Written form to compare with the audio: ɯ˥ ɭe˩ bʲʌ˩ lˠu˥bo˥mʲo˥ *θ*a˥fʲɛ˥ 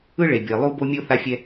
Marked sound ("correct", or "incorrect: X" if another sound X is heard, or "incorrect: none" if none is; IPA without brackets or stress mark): correct